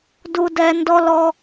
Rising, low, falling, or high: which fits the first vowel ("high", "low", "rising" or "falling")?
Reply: high